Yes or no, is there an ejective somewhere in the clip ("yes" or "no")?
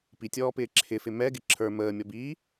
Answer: no